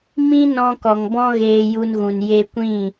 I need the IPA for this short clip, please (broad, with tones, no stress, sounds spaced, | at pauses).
m ĩ˦ n ɔ̃˧ k ɔ˨ ŋ b ɔ̃˦ ɣ eː˧ j u˧ n ɣ ũ˨ n j e˧ kʷ ĩ˦˨